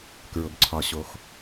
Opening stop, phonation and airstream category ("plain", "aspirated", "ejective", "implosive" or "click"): plain